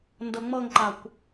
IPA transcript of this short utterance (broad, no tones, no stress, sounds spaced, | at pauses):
n d ɤ ŋ͡m ɤ ŋ ǃ a kʷ